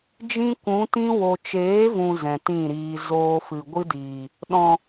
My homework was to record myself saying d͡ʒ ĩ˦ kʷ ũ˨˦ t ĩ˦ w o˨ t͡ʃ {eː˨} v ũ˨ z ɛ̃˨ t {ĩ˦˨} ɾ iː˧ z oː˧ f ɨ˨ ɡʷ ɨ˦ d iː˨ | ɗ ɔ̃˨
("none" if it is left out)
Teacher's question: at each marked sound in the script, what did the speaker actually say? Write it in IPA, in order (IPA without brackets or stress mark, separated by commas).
eː˨˦, ĩ˦˨